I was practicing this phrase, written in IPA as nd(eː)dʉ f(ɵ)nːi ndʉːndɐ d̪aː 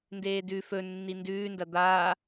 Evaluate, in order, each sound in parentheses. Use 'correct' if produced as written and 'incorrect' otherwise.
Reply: correct, correct

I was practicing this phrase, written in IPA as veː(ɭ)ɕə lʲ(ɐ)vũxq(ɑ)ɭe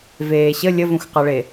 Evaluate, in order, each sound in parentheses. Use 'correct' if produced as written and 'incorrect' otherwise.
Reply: incorrect, incorrect, correct

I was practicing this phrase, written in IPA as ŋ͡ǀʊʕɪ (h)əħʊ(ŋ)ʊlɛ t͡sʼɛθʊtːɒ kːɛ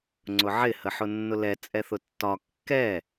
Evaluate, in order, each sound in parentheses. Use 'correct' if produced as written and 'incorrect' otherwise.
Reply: correct, incorrect

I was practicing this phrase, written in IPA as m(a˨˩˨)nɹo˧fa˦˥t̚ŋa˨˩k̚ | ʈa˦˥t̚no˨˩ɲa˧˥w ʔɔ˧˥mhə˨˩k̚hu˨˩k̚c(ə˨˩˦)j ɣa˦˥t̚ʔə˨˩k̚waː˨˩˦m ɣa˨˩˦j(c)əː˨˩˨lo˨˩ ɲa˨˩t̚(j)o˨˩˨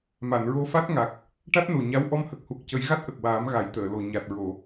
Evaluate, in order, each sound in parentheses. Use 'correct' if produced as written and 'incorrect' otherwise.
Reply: correct, correct, incorrect, incorrect

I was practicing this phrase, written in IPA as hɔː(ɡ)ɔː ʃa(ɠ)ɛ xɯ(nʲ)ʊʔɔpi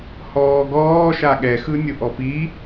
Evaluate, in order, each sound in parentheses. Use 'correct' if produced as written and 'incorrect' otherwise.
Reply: correct, correct, correct

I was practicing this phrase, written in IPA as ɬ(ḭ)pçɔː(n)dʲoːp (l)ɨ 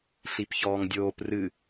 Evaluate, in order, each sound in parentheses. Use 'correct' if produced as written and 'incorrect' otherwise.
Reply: incorrect, incorrect, incorrect

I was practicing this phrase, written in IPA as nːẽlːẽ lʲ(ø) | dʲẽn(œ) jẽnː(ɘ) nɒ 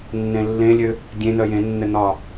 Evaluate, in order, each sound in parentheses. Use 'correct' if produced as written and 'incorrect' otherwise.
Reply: correct, correct, correct

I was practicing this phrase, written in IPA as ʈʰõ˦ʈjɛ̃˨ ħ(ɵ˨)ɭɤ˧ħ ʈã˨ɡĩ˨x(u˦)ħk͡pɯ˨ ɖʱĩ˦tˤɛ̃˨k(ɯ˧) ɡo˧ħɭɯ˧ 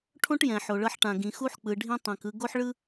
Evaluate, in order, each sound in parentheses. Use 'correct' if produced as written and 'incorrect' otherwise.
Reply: incorrect, correct, correct

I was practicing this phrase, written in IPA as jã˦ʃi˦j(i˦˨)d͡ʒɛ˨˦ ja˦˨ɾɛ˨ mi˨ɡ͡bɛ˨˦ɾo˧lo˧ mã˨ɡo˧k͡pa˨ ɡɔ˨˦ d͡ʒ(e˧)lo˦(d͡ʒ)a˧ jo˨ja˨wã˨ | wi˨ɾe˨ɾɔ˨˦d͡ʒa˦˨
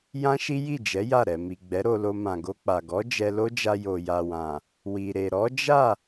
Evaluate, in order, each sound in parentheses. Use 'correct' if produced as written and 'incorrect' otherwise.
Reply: correct, incorrect, correct

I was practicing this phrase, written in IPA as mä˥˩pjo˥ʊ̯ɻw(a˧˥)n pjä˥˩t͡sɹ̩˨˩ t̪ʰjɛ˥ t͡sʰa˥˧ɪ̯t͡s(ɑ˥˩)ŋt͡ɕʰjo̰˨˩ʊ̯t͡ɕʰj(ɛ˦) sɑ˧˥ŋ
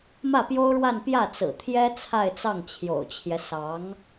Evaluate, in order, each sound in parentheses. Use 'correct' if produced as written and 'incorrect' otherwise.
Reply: incorrect, correct, correct

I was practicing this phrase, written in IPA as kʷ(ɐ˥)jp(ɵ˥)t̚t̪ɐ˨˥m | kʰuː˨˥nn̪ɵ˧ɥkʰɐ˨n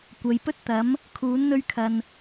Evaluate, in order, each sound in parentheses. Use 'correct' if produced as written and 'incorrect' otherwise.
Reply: incorrect, correct

